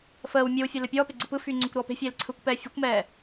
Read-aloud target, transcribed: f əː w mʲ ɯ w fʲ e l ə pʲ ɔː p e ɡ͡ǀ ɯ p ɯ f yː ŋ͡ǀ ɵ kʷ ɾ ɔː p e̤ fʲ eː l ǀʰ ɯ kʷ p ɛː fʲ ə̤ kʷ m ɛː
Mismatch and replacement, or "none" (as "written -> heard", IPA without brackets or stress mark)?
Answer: none